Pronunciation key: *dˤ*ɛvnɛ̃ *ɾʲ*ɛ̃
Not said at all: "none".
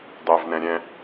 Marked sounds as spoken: dˤ, ɾʲ

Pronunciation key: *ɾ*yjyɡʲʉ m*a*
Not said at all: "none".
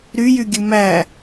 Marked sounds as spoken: ɾ, æ

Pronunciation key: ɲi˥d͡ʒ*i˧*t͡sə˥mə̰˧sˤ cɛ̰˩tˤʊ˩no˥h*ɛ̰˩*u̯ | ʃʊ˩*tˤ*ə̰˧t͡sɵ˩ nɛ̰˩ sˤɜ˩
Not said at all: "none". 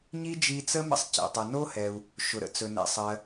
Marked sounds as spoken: i˧, ɛ˩, ɾ

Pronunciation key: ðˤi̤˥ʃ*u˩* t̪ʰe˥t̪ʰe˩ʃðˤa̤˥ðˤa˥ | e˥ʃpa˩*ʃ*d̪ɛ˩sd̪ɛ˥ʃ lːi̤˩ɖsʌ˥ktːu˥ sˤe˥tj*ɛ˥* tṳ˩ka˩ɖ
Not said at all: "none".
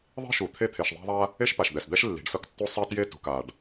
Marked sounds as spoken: u˩, ʃ, e˥

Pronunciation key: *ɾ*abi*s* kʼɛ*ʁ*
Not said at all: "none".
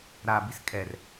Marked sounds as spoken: ɾ, s, r

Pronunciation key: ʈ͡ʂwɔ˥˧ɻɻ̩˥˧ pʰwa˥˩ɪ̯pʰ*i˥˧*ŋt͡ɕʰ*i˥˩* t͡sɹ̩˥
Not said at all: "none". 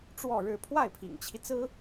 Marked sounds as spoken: ḭ˨˩, i˦

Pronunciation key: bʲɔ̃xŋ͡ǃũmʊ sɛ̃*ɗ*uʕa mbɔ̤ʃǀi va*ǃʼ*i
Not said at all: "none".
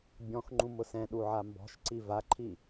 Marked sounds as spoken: ɗ, ǃʰ

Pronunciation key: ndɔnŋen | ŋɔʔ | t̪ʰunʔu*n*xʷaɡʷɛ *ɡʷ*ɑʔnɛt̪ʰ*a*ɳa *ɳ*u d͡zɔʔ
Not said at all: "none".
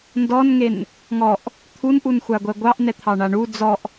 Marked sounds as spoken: n, ɡʷ, ɑ, ɳ

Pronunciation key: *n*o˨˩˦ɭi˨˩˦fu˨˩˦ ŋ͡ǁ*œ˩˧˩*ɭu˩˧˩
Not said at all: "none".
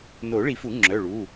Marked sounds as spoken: n, œ˩˧˩

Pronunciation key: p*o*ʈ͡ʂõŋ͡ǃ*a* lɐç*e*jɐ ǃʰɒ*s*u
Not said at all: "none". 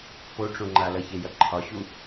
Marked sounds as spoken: o, a, e, ɕ

